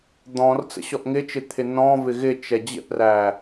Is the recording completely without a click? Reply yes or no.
yes